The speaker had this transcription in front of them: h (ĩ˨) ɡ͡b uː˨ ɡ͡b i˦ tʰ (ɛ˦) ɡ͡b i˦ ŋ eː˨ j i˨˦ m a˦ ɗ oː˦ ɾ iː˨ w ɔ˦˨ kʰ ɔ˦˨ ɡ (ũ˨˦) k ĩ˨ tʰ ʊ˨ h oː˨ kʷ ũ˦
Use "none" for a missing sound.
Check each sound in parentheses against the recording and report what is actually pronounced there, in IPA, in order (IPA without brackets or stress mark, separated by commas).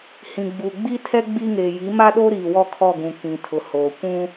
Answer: ĩ˨, ɛ˦, ũ˨